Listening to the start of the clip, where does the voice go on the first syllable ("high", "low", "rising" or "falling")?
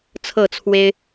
falling